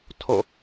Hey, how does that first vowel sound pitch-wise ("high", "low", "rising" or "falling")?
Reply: falling